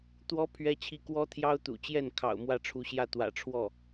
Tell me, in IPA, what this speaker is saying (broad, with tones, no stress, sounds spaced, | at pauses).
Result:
t̪ w ɔ˥ pʰ ɥ ɛ˥ t͡ɕʰ i˥ k w ɔ˥ t̪ʰ j ɑ˥ ʊ̯ t̪ ṵ˨˩ t͡ɕ j ɛ˥˩ n kʰ ɑ̰˨˩ ʊ̯ m w ä˥˩ ʈ͡ʂʰ u˧˥ ɕ j ä˥˩ t̪ w ä̰˨˩ ʈ͡ʂʰ w ɔ˥˩